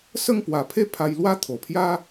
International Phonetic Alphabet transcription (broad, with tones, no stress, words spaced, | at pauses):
sə˥˧ŋpwa˨˩pʰe˦ pʰa˧jlwa˦t̪ʰo˨˩pʰja˦